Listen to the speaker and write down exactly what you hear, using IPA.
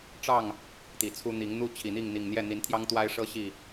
ʈ͡ʂ ɑ˥˨ ŋ | t̪ i˨˩ t͡sʰ u˦ n̪ i˨˦ ŋ n̪ u˦ t͡ɕʰ i˨˩ n̪ i˥˨ ŋ n̪ i˨˩ ŋ n̪ j ɛ˥˨ n̪ i˨˦ n t̪ʰ j ɑ˦ ŋ t̪ w a˦ ɪ̯ ʂ ɤ˦ ɕ i˥˨

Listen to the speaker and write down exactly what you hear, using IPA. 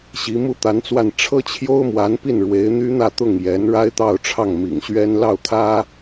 ɕ i˧˥ m u˥ t̪ a˧˥ n t͡s w a˥˩ n ʈ͡ʂʰ ɤ˥ t͡ɕʰ j o˥ ʊ̯ m w a˧˥ n p i˥˩ n ɻ w e˧˥ ɪ̯ n̪ y˥ n̪ ä˥˧ t̪ ʊ˥˩ ŋ j ɛ˧˥ n ɻ a˥ ɪ̯ t̪ ɑ˥˧ ʊ̯ ʈ͡ʂʰ ɑ˥˩ ŋ m ḭ˨˩ ŋ ɕ ɥ ɛ˥ n l ɑ˥˩ ʊ̯ t̪ʰ ä˥

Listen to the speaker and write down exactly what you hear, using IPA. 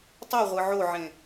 tˤ ɯ ʁʷ ɯ ʕ o ʕ ẽ

